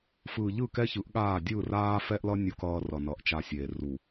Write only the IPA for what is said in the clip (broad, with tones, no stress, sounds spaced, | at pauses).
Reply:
f ɯː˨ ʎ ɯ˦˨ k ɛ˦ ç ɯ˨˦ ʔ ɠ aː˦˨ dʲ ɯ˦˨ r aː˦ f ɛ˦ ʔ l ʌ˦ nʲ u˦ k ʌː˦ r ʌ˨ n ʌ˨˦ ʔ t͡ʃ a˦ sʲ eː˨ r u˨